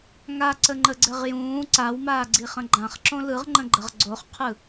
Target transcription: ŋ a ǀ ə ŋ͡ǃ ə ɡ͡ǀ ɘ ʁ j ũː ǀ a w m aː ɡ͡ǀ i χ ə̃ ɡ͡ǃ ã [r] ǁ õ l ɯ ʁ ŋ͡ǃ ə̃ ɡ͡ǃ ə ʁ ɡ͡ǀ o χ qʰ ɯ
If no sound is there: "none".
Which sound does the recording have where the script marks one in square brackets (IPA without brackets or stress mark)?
χ